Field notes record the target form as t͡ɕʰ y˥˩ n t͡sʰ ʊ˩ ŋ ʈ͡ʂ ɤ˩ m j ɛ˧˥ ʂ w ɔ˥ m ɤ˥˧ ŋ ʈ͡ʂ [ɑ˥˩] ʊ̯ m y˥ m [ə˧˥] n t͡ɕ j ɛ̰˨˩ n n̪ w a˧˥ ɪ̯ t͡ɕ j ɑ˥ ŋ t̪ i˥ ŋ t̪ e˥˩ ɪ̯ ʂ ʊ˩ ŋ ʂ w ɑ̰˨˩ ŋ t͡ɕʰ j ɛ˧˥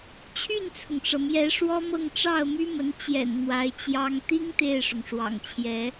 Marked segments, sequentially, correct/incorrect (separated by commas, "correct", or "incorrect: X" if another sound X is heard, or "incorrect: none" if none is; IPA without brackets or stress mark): correct, correct